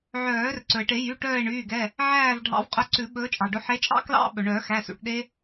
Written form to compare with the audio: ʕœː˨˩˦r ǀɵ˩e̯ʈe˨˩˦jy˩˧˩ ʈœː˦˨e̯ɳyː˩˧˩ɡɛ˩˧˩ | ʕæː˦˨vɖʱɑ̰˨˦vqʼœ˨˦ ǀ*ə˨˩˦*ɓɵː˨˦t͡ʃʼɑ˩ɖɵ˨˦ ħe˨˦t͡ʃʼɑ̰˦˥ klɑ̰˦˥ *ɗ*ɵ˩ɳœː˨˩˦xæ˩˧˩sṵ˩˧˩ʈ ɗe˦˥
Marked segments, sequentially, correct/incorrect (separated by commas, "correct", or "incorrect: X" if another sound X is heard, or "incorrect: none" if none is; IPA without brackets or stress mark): incorrect: ʉ˨˩˦, incorrect: ɓ